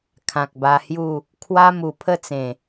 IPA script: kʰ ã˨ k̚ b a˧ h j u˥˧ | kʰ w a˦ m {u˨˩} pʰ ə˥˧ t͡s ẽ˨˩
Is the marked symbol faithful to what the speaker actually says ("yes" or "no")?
yes